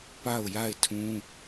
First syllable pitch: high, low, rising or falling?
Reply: falling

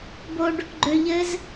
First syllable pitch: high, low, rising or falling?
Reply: high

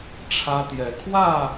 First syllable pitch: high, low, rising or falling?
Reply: high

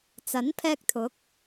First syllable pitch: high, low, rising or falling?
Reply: rising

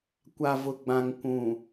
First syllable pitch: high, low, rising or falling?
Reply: low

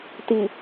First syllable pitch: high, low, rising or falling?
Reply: low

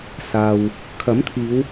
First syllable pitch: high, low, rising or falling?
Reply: low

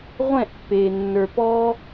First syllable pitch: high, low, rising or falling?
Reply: falling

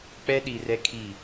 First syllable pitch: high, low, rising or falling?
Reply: high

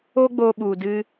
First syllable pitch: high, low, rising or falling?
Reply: high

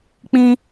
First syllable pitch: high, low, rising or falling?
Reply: high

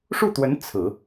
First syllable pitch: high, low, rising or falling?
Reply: falling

